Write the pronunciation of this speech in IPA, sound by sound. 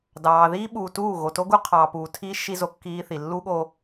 d ɑː˨ ð iː˦ ɓ uː˨ t uː˦˨ ɣ o˨ t o˦ ɡ u˦ qʰ ɑː˨ p uː˨ tʰ iː˦ ʃ i˦ z o˨ kː iː˦ θ i˨ lː u˦ ɠ o˦

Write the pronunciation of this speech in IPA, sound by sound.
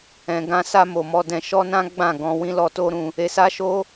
ɛ̃˨ ɡ ã˧ s a˧ m o˨ m ɔ˧ d ɛ̃˧ ʃ ɔ˦ n ã˦ ɡ͡b ã˦˨ ɡ ɔ̃˧ w ĩ˦ l ɔ˧ t o˦ ɾ ũ˧ | e˧ s a˦ ʃ o˦

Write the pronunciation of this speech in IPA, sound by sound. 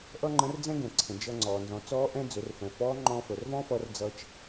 ʔ ʌ˥ ŋ͡ǃ ə̃˧˥ r d͡z ɛ̃˥ ɡ ɛ̃˩ ǀʰ ə̃˩ d͡ʒ ʌ˧ ŋ͡ǀ ɔː˩ n z ɔ̃˩˧ t͡s ɔː˧˥ ʔ ɛ̃˧ d͡z ɵ˩˧ r f ɛ̃˩ f ɔː˧˥ ŋ͡ǃ ɔ̃ː˧ f əː˩ r v ɔ̃ː˥ f ʌː˧ r d͡z ʌː˧ t͡ʃ

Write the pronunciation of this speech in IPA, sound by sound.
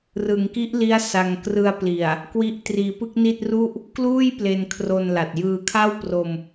r ɯ˩˦ ŋ k i˦˥ ʔ l i˦˥ a̯ s a˧ ŋ k r ɯ˧ a̯ p l i˨˩ a̯ | k w i˥˩ ʔ t r iː˧ p ɯ˥˩ k̚ n i˥˩ t̚ r u˥˩ ʔ | k l uː˥˩ j p l e˧ n kʰ r o˧ n l a˨˩ t̚ j ɯː˧ kʰ a˥˩ w p r o˧ m

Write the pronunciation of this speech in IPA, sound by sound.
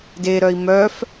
d e ɾ œ i̯ m œ f

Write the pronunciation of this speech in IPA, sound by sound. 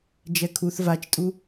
d͡ʒ ɛ kʰ u θ v a t͡ʃ tʼ u

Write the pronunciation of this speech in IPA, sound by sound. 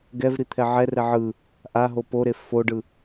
ɡ ɛ v ɾ i t̪ʰ ɛ ʕ ɛ r ɛ ʕ ɯ | ʔ a ɦ o p o ɾ e f o ɖ ɯ

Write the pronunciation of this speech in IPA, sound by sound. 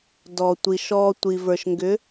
d ɔ˩ tʷ i˩ ʃ ɔ˩ tʷ i˩ v ə˞˩ ʃ ŋ ɡ ʏ˨˦

